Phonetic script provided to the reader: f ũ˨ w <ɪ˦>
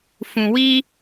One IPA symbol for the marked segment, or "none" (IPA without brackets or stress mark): i˦